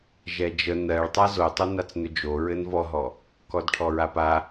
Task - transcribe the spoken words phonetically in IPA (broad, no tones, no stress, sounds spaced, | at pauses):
ʒ ɛ d͡ʒ ə n ɜ ɭ tˤ a z o tˤ o n a t͡s n ʏ d͡ʒ o ɹ ɘ n v ɔ ɦ ɔ | k ɔ d ʈʰ ɔ ɹ a p a